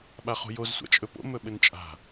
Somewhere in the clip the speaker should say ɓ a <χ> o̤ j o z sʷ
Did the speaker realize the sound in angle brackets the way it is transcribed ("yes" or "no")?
yes